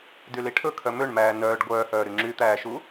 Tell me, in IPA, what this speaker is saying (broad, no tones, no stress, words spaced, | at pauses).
dyliʈʰɵ kʰœmøɳmæː nœːɖ ɡʷœːhœːɾy ŋ͡ǁyt̪æːʃu